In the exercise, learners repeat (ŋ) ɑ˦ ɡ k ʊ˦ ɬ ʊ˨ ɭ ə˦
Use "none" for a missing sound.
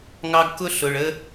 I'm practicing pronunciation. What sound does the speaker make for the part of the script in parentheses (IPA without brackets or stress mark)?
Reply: ŋ